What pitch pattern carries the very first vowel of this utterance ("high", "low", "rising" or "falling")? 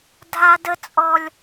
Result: high